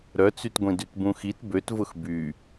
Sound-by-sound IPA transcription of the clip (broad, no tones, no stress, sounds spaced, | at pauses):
ɾ œ t͡s y t ɡʷ ĩ d y t b ũ x i t b ø t v ʊ x b y